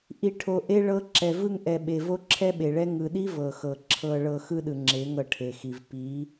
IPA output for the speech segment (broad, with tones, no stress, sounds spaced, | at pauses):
ʔ i˧ ʈʰ o˧ ʔ e˦ ɭ ɤ˧ ǁ ɛ˨ v ɯ˧ ŋ ʔ ɛ˨ ɓ e˨ v o˦ ǁʰ ɛ˦ ɓ e˨ ɭ ɛ˦ ŋ ɯ˨ ɗ i˦ v ɤ˨ x ɤ˨ ǁʰ ɤ˧ ɭ ɤ˧ x ɯ˦ ɗ ɯ˨ ŋ͡ǁ e˨˦ ŋ ɤ˦˨ ʈʰ e˨ x i˨ v p i˨˦